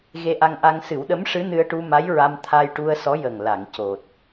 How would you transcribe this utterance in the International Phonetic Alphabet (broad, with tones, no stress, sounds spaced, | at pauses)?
ɣ e˧ ʔ a˧ ŋ ʔ a˧ ŋ s ɨ˨˩˦ w ɗ ə˧˥ m ʂ ɨ˧˥ n ɨ˧ ə̯ ʈ u˧ m a˧˥ j ɹ a˧ m t̪ʰ a˧ j ʈ u˧ ə̯ s ɔ˧˥ j ə˨˩ ŋ l a˨˩˨ ŋ c o˨˩ t̚